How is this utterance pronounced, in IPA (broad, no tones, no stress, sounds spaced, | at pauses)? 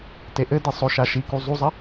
t e ʔ ɘ d i sˤ o ʃ a ʃ i k u zˤ u zˤ ɐ